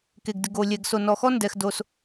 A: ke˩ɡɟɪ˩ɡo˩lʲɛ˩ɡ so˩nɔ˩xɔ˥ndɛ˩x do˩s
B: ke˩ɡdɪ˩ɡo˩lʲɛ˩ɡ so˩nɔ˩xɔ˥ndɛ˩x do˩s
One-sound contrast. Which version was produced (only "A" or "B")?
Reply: B